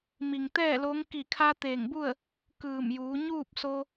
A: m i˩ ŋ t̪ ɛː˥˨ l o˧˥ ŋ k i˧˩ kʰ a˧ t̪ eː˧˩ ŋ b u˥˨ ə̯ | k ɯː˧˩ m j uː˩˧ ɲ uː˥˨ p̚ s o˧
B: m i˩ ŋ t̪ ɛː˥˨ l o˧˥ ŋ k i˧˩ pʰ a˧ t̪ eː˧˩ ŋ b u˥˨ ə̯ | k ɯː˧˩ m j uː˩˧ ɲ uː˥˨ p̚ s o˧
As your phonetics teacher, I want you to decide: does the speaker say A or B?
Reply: A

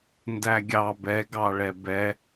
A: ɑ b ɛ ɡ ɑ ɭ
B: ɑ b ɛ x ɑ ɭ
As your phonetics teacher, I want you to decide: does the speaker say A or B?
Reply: A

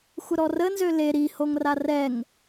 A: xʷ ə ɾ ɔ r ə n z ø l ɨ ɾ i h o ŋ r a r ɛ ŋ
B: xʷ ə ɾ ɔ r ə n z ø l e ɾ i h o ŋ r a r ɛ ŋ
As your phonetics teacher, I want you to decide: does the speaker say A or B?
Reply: B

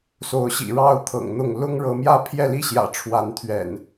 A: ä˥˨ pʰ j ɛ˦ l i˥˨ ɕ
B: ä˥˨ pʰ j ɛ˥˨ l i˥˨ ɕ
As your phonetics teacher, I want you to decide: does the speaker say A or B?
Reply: B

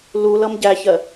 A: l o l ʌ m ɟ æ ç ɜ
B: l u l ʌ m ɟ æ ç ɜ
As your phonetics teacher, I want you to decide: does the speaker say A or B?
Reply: B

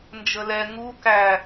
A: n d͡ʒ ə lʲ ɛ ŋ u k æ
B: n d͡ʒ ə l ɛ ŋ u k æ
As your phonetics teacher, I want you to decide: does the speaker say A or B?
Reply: B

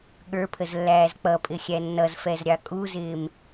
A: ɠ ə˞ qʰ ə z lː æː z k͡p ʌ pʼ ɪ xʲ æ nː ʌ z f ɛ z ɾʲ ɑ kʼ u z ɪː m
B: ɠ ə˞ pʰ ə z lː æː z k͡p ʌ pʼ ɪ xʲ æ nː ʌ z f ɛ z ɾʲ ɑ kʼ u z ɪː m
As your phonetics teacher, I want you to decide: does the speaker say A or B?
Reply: B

